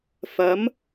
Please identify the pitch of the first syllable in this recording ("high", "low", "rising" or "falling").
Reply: rising